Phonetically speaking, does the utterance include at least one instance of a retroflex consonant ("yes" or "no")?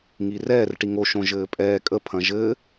yes